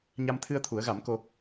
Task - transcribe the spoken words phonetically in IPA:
ɲ a˧ m t̪ʰ ɨ˧ ə̯ t̪ʰ u˨˩˦ ə̯ ɣ a˨˩˦ m k o˧

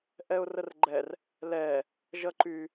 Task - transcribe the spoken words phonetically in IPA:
ʔ ɛ ʊ̯ r ə r ɡ͡ǃ ɛ r | l ɛ | ʒ ʌ ǃ y

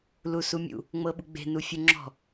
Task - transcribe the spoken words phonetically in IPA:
l u s u mʲ ṵ | ŋ͡m ɤ ɓ u ɡ͡b e̤ n u fʲ u ŋ͡ǁ ɔ̤

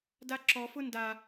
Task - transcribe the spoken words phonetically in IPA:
d a ǁ ɔ f ʊ n d a

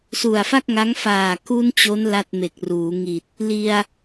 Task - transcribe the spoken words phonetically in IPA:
s u˨˩ a̯ f a˥˩ k̚ ŋ a˦˥ ŋ f aː˨˩ k u˧ n t͡ɕ o˦˥ n l a˥˩ t̚ m e˨˩ k̚ r uː˩˦ ŋ i˨˩ t̚ | l i˧ a̯

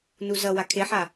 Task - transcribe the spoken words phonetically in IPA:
n u z ʌ w a kʰ e ħ a

